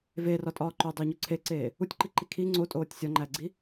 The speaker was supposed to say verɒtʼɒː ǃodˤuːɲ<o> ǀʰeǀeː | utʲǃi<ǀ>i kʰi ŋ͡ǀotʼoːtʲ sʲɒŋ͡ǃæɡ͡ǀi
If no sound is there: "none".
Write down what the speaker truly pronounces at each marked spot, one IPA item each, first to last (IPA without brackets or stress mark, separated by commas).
o, ǃ